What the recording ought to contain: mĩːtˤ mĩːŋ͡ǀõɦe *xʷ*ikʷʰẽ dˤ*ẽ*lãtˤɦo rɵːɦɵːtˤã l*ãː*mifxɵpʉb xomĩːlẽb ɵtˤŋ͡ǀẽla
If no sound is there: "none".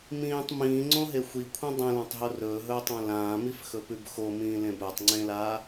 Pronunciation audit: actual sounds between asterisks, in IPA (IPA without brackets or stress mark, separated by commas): xʷ, ẽ, ãː